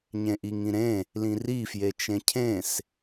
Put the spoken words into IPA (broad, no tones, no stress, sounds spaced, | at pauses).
ɲ ẽ ʔ i ŋ ĩ ɾ ẽ | l ĩ r i f j e t͡ʃ ẽ cʰ ẽ s